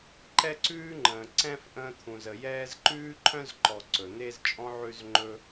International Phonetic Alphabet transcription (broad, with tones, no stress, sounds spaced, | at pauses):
ǃ ɛ˥ ǀ ʉː˥ ŋ͡ǃ ə̃ː˨ ǀ ɛ̃˥ f ʔ ə̃ː˦ t̪ʰ ũ˨ z ə˨ j ɛː˦ z ǃ ʉː˥ ǃʰ œ̃˥ z ǃ ɔ˨ ǀ ɵ˩ n̪ e˦ z t͡ʃʼ ɔ̃˦ ʕ ʉ˦ z ŋ͡ǃ ɵ˦